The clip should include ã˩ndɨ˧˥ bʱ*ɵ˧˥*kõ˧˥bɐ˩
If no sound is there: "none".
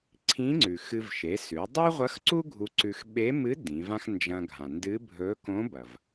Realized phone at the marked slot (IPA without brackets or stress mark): ɵ˧˥